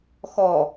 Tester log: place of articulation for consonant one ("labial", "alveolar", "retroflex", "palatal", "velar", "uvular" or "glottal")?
velar